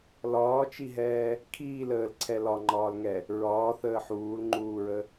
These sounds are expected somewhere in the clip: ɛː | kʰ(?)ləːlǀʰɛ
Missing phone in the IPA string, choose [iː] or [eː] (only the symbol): iː